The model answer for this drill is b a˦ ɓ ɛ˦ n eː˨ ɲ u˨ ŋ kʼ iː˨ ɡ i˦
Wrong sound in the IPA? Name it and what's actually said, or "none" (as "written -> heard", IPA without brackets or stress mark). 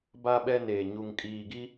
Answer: none